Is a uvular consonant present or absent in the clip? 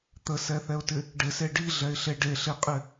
present